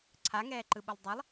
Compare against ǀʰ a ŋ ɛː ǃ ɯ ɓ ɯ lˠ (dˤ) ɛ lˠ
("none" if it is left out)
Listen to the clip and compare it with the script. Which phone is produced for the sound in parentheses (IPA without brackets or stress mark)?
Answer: dˤ